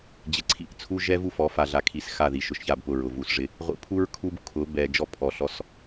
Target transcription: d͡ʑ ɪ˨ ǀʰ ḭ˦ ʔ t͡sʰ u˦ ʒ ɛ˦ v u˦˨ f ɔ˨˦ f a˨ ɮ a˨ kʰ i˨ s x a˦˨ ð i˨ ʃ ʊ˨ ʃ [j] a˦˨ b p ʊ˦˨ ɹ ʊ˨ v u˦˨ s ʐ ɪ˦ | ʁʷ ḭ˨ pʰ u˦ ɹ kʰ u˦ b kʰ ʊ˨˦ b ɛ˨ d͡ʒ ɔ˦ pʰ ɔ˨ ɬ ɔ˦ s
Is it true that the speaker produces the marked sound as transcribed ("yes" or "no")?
no